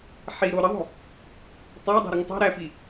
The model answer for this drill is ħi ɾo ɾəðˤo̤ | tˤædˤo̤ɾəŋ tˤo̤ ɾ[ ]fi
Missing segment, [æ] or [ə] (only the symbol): æ